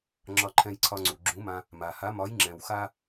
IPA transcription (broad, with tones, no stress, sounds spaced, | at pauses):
ŋ͡ǁ ɒ˧ ǃʰ ɛ̃˧ j ǀʰ ɒ˧ ŋ͡ǀ u˩ ɡ͡ǁ ũ˨˥ m ã˧ | m a˩ h a˨˥ m ɒ˨˥ j ŋ͡ǁ ɛ̃˩ w x a˧